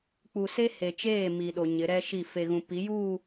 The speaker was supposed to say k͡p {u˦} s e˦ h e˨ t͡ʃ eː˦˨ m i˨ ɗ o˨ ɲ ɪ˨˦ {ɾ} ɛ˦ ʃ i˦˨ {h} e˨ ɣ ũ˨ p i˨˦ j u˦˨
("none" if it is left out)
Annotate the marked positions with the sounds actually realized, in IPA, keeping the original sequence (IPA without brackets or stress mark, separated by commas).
u˨, ɾ, f